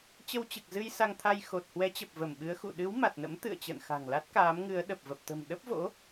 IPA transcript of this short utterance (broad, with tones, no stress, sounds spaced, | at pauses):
t͡ɕ ə˧ w t͡ɕ ɨ˨˩ k̚ z ɨ˧ j s a˧ ŋ t̪ʰ a˧ j x o˨˩ t̚ h w ɛ˨˦ t͡ɕ ə˨˩ p̚ v ə˧˩ m ɓ ɨ˨˦ ə̯ x ṵ˧˨ ɗ ɨ˨˦ w m a˨˩ t̚ n ə̰˧˥ m t̪ ɨ̰˧˨ ə̯ t͡ɕ ə̰ː˧˨ n x a̤˨˩ ŋ l a˦˥ t̚ k aː˨˦ m ŋ ɨ˨˦ ə̯ ɗ ə˨˩ p̚ v ə˨˩ p̚ t̪ ə̤˨˩ m ɗ ə˦˥ p̚ v o̰˧˥